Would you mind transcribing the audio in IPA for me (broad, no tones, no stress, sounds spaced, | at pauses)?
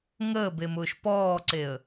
ŋ əː b e m ʊː ʃ p ɔː ǀ e ə̯